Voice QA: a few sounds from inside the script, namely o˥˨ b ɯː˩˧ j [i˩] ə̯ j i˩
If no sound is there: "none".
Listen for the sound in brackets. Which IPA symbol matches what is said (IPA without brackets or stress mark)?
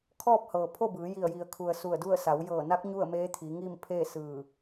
i˧˩